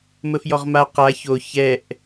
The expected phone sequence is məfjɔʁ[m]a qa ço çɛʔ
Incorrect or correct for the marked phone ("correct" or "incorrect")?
correct